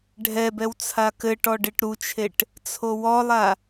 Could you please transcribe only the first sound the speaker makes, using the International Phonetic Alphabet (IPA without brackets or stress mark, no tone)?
ɖʱ